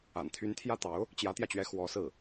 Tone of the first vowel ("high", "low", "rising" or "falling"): low